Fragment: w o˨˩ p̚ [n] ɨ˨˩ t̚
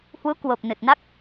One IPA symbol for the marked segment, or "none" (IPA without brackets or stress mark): n